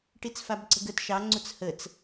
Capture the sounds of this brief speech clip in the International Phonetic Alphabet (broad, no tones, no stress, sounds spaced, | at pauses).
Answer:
ʈ i t͡s f a b ǀ ə̤ ɡ ə t ʃ ɑ ŋ͡ǀ u t͡s h ə t͡s